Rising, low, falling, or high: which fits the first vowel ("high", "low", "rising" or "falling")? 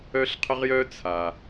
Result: high